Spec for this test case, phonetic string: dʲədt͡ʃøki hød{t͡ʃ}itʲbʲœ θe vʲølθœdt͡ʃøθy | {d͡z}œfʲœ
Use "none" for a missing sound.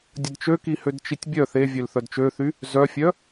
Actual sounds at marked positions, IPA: t͡ʃ, z

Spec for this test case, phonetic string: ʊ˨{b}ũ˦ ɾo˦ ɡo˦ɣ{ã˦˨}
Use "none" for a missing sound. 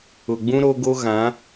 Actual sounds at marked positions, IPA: ɡ͡b, ã˨˦

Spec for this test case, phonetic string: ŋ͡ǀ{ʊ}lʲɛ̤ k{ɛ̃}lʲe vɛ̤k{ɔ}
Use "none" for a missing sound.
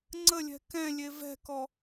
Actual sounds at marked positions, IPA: ə, ɛ̃, ɔ

